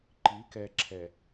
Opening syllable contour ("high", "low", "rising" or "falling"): rising